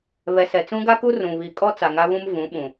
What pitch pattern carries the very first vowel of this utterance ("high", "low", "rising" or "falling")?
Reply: low